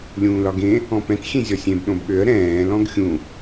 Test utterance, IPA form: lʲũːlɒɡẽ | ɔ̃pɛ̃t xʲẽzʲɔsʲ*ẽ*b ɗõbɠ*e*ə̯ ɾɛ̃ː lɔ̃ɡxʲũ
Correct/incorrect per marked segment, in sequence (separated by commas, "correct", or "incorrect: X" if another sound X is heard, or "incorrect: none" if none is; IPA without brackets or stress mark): correct, incorrect: ø